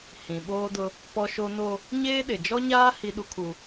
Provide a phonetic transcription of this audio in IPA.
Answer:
hĩ˨ɓoː˦dʊ˦ | pɔ˦ʃo˦ no˦ | ɲeː˦ɗɪ˨ d͡ʒɔ˦ɲaː˦ hi˦ɗu˦kʰu˦

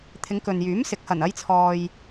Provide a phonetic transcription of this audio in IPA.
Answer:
t̪ʰɪ˨˧ŋkɵ˨njyː˨˥m sɪ˨˥k̚hɐ˨˩n ɐ˨˧jt͡sʰɔː˨j

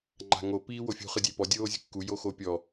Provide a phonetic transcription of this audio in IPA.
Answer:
ŋ͡ǃa̤ŋo piːwofʲṳ χɯdʲepɔ dʲoːzʲṳkːu joxopʲɔ

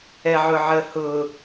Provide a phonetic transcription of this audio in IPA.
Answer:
ɛʕʊʕəhʊ

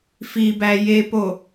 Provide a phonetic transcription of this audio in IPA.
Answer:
fibæ jepo

